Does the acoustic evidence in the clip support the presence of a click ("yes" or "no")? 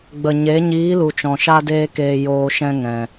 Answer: no